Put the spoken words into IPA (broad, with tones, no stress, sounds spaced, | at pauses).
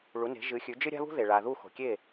ɭ u˩˥ n e̤˩˥ ʒ ɨ˩˥ xʲ ʉ˩˥ d͡ʒ ɨ˥ ɾʲ a̤˥ β ṳ˥ ð e˩ ɭ a˩ ð u˥˩ x o̤˩ kʲ e˥˩